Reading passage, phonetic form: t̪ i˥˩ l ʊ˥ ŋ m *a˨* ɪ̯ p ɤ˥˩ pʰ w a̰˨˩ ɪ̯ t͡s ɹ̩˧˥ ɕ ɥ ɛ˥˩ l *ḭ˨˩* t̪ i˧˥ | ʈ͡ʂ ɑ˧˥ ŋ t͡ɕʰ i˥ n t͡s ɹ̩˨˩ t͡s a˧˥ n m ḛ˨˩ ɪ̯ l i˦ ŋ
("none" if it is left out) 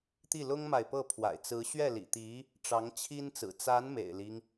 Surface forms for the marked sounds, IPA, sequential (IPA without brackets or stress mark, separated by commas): a˨, ḭ˨˩